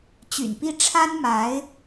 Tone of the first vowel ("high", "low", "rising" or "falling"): low